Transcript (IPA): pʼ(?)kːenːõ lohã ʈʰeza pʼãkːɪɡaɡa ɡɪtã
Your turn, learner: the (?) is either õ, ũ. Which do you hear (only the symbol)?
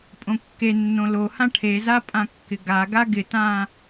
õ